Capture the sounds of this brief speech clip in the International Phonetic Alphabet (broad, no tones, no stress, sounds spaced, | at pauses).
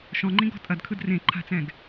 ʃ ɔ̃ ŋ͡ǃ ĩ ɡ ɔ̤ tʼ ɐ d kʰ ɯ d r ẽ ǃʰ a̤ t͡s ɛ̃ ɡ